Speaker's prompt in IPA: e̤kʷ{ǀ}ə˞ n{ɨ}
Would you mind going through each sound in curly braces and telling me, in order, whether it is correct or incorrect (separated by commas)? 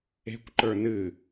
incorrect, correct